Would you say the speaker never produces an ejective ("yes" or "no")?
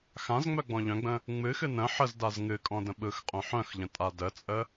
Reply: no